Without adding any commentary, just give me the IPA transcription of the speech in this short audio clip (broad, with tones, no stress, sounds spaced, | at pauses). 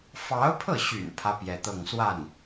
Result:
f ɑ˧˥ ʊ̯ pʰ ɤ˥˩ ɕ y̰˨˩ n pʰ ä˥ p j ɛ˥˧ t̪ ɤ˥˧ ŋ s w a˥˩ n